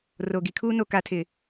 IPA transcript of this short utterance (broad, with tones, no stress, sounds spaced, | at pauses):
r o˨ ɡ i˨ kʰ uː˦ n o˨ k a˨ tʰ ɪ˨